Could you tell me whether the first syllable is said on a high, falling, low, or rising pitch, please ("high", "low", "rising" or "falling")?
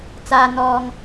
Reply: low